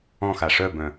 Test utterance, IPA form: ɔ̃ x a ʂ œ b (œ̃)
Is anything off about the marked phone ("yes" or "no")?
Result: no